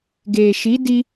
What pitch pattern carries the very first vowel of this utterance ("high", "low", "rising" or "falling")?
low